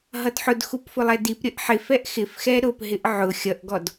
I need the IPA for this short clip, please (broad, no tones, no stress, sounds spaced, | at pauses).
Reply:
ɦ ʌ d ħ ʊ d x u p f ʊ lˠ ɛ d i p ɾʲ ə ʔ ħ ɪ f ɛ ʔ x ɪ f x ɛ ɾ ʊ p ɦ ɪ ʔ ʕ ʊ xʲ ʌ ʔ ɡ ɔ d